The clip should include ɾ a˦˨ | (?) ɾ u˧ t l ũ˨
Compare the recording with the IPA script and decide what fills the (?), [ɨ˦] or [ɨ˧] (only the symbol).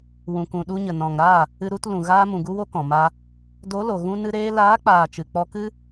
ɨ˧